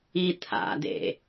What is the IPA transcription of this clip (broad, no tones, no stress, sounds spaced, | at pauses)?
i t̪ʰ a̰ d ḛ